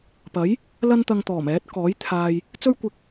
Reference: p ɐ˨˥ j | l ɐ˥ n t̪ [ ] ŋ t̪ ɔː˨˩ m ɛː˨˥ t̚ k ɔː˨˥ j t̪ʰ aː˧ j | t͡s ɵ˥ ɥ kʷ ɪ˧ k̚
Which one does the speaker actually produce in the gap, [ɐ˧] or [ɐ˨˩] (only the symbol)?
ɐ˧